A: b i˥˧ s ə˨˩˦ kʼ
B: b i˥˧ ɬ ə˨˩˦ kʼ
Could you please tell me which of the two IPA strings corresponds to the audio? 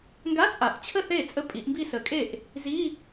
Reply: A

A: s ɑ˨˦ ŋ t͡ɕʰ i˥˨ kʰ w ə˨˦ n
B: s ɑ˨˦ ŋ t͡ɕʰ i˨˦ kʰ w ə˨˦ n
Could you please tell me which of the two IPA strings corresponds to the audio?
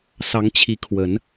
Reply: B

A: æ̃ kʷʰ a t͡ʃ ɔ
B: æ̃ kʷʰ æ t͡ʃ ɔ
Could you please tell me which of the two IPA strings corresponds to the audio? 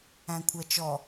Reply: B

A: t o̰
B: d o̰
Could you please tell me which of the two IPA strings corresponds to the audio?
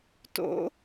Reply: A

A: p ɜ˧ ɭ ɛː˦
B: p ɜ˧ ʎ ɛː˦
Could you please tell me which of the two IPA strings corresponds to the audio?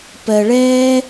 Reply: A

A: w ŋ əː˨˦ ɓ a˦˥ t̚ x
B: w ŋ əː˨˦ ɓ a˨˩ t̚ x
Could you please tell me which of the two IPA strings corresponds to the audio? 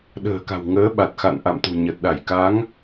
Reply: B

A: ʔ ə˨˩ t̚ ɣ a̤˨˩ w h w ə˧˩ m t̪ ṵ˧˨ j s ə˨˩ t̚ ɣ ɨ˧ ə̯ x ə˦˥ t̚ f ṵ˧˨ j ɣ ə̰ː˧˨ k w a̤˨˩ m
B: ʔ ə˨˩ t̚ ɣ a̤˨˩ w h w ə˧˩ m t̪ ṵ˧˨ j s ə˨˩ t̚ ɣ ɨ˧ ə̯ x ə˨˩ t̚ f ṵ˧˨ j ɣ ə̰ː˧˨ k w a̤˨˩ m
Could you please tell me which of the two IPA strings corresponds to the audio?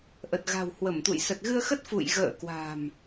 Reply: A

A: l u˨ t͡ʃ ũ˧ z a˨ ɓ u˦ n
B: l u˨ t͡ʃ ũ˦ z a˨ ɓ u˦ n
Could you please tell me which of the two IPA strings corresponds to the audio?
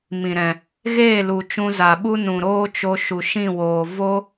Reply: A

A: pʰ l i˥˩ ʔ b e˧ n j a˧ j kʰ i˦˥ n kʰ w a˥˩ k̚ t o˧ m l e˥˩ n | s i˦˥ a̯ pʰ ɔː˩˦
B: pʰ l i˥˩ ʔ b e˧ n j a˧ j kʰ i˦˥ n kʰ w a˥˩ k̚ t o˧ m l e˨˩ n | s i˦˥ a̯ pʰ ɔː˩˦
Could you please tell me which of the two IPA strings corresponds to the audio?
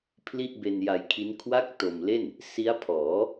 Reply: A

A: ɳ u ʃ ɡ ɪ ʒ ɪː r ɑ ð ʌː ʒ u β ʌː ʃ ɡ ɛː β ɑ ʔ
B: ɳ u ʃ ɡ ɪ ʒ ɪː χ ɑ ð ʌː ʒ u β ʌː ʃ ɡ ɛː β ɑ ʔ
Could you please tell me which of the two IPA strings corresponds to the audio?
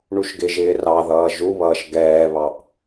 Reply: A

